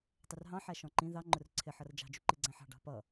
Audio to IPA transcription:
tˤɪrɦɑ̃ ħæʃɔ̃ǃĩ ðɑ ŋ͡ǃʊrǀʰɪ ħʌrd͡ʒɑ̤ d͡ʒuǃiɡ͡ǀæ̃ħɑ̤ ɖɑ̤pʌ

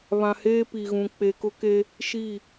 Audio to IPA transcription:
βã˨heː˦pi˨ɣũ˨ k͡pe˨kʊ˦ke˦ | ʃi˦˨

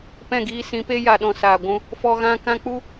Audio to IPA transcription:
pɛ̃˦˨ɡiː˧sĩ˨˦pe˦ ja˧ɗɔ̃˧saː˨ ɡʷũ˧ | fɔ˧ ɣã˦ kã˦ k͡pu˦

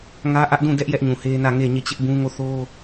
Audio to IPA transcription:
ŋä˦ʔä˦ʔdũ˦˨dɛ˦ʔ jɛ˦ʔɲũ˨he˦nä˦˨ ŋe˦˨ ɲe˦˨t͡ɕɪ˦ʔbũ˦ ŋo˦˨θo˦

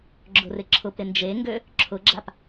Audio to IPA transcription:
ɡ͡ǁʊrɪǁʰʊpɾɪ nd͡ʒeŋɡø | ǁʰʊɡ͡ǁap

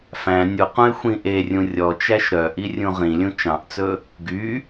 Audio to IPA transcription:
fæ̃ nʲuqũɪ̯ xʷĩʔerʲũ rʲɔt͡ʃæʃ ɾœʔi rʲũʁĩlʲũ t͡ʃɑ̃ʔt͡sɵ | ɡy

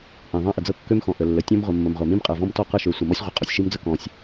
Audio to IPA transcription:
ʔĩ˩ ðˤã˥ʔə˩d͡zɤ˥ kːø˥mxɔ̃˩ʔə˩ lːə˩tʲɔ̃˥m ʁʷə˩ mːə˩mʁʷa˩mĩ˥m qʼɤ˩vɔ̃˥mtɔ˥ qɤ˥ʃø˩sʷə˩ mɔ˥sʲʁʷə˩ qʼɔ˩sʲʃi˥md͡zə˥ kɔ̃˩sʲ

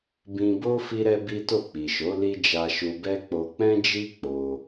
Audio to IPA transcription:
bĩ˧bo˦ fi˦ɾɛ˦bi˦to˦˨ k͡pi˨ʃo˨˦ li˦d͡ʒa˧ʃu˧bɛ˦ k͡po˧ k͡pɛ̃˦d͡ʒi˦ k͡po˧

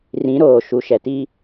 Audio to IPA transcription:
rĩ˨˦ɾoː˨ ʃu˨ʃɛ˨ti˦

